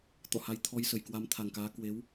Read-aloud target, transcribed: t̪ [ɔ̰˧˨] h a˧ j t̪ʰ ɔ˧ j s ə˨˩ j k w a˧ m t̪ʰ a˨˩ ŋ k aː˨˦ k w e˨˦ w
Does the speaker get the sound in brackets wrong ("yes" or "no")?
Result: no